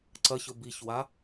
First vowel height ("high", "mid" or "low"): low